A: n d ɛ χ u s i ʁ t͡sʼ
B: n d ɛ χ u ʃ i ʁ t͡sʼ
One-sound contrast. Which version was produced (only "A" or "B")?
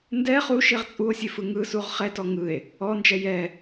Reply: B